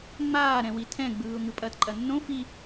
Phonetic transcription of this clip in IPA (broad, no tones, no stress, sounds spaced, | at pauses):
ŋ͡m aː ɾ ɛ̃ w i tʰ ɛ̃ ɡ͡b ɯː ʊ̯ ŋ ɯ pʼ ɐː t ǃʼ ɐ nː õ f i